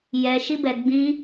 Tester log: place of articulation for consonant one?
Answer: palatal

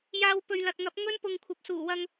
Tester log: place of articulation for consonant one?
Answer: palatal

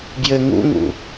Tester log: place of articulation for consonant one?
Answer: labial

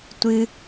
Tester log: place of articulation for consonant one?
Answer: alveolar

